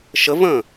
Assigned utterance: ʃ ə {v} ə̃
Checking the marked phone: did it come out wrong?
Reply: no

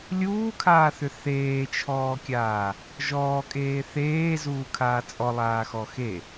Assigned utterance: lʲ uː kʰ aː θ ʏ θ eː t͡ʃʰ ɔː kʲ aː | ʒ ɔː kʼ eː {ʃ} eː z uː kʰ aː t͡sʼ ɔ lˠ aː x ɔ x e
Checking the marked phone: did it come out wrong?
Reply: yes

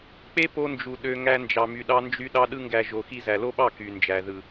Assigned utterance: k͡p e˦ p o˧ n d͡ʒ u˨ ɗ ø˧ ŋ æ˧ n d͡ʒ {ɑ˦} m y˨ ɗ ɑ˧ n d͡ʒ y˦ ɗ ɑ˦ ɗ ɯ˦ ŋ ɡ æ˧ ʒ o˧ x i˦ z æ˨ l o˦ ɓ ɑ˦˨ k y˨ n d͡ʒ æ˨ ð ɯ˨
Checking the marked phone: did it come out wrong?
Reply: yes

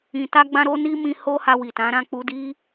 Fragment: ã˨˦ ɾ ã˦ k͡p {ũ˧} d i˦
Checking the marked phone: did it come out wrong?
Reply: yes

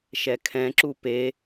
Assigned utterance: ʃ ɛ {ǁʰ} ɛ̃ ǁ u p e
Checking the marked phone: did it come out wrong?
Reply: yes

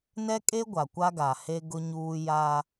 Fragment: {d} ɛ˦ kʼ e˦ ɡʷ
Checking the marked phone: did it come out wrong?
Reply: yes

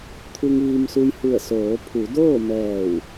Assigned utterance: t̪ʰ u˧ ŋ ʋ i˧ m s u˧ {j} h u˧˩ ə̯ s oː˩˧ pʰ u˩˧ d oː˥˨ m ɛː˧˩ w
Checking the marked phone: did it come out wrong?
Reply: no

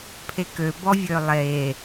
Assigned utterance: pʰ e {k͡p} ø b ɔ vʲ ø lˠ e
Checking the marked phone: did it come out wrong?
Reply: yes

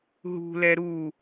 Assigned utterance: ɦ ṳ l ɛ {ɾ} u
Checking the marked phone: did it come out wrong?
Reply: no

